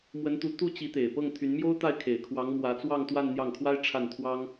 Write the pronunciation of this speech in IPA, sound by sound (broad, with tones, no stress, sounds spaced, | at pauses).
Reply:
m w ə˧˥ n t̪ u˧˥ t̪ u˥˩ t͡ɕ i˧˥ t̪ e˨˩ ɪ̯ p ɤ˥˩ ŋ t̪ʰ y˧˥ n m j o˥ ʊ̯ t̪ a˥˩ ɪ̯ kʰ e˨˩ ɪ̯ kʰ w ɑ˧˥ ŋ m w ä˧˥ t͡s w ɑ˥˧ ŋ t̪ w a˥˧ n n̪ j ɑ˥˩ ŋ kʰ w a˥ ɪ̯ ʈ͡ʂʰ a˥˩ n t̪ʰ w ɑ˥ ŋ